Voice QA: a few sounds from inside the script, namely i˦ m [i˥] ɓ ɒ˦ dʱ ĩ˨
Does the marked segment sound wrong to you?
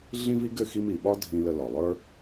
yes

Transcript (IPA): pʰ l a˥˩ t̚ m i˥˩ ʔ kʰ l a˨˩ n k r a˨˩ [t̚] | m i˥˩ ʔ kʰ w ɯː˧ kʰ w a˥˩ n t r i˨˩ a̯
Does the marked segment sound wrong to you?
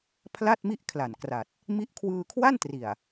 no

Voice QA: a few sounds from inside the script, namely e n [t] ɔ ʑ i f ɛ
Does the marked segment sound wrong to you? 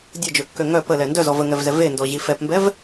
yes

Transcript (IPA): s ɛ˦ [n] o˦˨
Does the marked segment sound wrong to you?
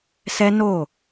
no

